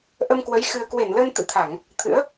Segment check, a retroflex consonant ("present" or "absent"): absent